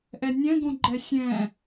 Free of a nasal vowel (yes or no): no